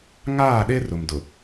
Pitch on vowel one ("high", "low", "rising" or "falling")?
falling